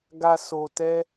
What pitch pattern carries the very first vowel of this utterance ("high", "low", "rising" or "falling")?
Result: low